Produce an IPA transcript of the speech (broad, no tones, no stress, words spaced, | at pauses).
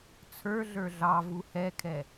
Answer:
t͡sʰə˞ɮə˞ ɮɑ vuhɛkʰɛ